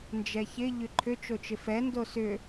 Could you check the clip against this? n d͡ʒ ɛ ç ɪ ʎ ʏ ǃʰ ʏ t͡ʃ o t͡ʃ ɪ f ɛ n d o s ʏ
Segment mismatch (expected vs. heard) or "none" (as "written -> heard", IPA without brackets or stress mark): none